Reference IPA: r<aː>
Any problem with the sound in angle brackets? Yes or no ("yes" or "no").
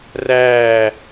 yes